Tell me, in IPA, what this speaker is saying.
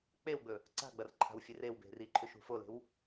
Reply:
k͡p e w ɡ͡b ɵ | ǀ a̤ ɡ͡b ɐ r ǃʰ a̤ w fʲ e r e w b e̤ r i ǃʰ ʉ ʃ ṳ f o l e̤ w

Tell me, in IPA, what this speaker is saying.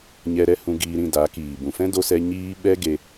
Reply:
ɲ ɛ˧ ɾ ɛ˦ h ũ˧ ɡ iː˧ ɾ ĩ˦˨ d a˨˦ k iː˨ b ũ˨ f ɛ̃˦ d o˧ s ɛ˧ ɲ iː˦ ɓ ɛ˦ ɡ e˧

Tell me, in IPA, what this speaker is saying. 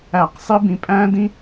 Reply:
æ˦˨ q sˤ i˦ b ĩ˧ pʼ æ̃ː˦ d ĩ˦

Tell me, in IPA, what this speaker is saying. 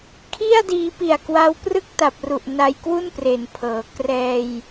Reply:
kʰ i˥˩ a̯ d iː˧ p i˨˩ a̯ k w a˦˥ w p r ɯ˥˩ k̚ t a˨˩ p̚ r u˨˩ ʔ n a˧ j k w u˥˩ n p r e˩˦ n pʰ ɤː˩˦ k r ɛː˧ j

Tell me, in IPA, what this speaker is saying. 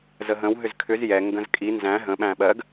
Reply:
z ə ɦ ə̃ w ɦ ʏ z kʰ ʏ z j ɛ ŋ ɡ ə̃ z kʼ i n z æ̃ ɦ ə̃ ɓ æ̃ ɓ ɜ ɡ

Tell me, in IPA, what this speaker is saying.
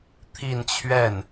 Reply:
t̪ʰ i˥˧ n t͡ɕʰ ɥ ɛ˥˩ n

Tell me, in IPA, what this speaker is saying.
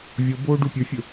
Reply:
vʲ o b oː ɖ u pʲ ɵ fʲ ɵ

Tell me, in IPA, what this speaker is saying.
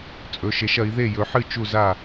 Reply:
t͡sʼ ɵ˨˦ ʃ e˨˦ ʃ ɐ˨˦ i̯ ð e˥˨ j ɵ˨˦ ħ ɨ˥˨ t͡ʃ u˥˨ z a˥˨

